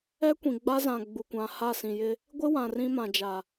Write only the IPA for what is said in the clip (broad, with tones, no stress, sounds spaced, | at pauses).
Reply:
ɛ˦ kʷ ĩ˨ ɡ͡b a˦ z ã˨ ɡ͡b u˨ kʷ ã˨ h a˦˨ s ĩ˨ j ɪ˦ | ɡʷ ɪ˦ w ã˨ r ĩ˦ m ã˨ d͡ʒ a˨